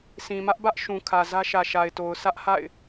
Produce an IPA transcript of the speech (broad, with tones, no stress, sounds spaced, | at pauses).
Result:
sʰ ĩ˨ m ä˦ ʔ b ä˦ ʔ ʃ ũ˨ kʰ ä˨ z ä˦ ʃ ä˨ ʃ a˨ ɪ̯ t o˨ ʊ̯ sʰ ä˦ ʔ h a̰˦˨ ɪ̯